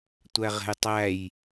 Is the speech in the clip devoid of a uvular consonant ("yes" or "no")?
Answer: no